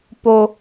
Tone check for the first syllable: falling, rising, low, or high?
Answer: high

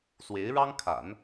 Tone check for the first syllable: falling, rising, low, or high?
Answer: rising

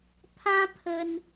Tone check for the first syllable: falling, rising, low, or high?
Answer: high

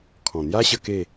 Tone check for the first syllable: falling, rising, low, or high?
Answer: low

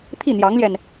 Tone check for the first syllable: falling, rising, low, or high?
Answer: falling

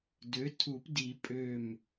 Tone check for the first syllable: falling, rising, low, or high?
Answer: rising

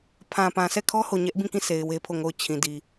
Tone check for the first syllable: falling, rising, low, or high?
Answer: low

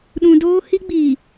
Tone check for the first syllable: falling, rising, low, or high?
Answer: high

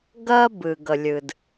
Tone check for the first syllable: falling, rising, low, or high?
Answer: high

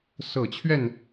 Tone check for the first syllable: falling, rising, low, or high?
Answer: low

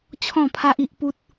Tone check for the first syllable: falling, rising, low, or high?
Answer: falling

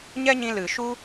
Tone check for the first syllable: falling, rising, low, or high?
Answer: high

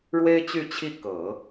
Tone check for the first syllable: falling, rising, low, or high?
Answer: high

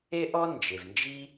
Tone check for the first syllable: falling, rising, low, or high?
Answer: high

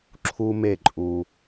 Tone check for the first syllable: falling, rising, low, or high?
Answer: high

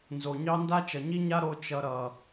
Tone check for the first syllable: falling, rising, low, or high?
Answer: low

